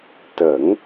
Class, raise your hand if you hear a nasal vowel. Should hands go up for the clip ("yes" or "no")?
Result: no